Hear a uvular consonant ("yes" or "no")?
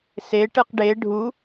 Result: yes